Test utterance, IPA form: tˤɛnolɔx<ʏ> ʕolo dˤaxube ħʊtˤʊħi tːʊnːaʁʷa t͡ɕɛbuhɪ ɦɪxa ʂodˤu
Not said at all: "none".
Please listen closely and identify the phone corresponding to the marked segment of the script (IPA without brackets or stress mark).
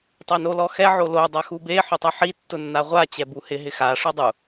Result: ɛ